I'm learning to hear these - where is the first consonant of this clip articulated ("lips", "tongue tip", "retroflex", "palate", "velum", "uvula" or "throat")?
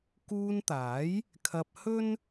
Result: velum